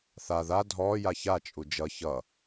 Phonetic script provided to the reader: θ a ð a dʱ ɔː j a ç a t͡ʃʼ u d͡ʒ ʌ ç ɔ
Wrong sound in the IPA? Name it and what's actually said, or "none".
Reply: ɔ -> ʌ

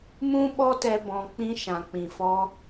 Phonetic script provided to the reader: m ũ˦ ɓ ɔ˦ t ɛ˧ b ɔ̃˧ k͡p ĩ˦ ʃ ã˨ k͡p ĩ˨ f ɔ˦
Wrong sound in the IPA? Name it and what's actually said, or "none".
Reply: none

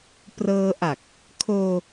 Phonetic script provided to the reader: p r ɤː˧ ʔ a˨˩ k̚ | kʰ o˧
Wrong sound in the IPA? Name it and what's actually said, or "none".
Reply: o˧ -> oː˧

